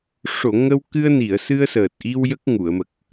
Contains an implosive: no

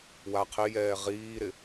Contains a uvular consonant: yes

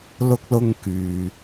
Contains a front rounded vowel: yes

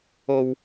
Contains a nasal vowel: no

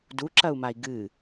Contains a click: yes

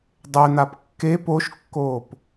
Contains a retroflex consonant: no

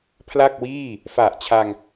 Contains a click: no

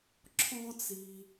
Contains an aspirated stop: yes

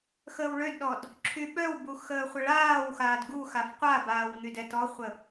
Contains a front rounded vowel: yes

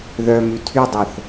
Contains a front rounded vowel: yes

